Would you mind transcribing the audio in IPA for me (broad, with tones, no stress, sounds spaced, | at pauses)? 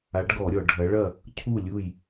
a˨˦ ɖ ɡ ɔ˧˩˧ ɾʲ ɔ˧˩˧ ɖʱ ɐ˨˦ ɭ ɐ˥˨ | cʰ u˥˨ lʲ u˥˨ j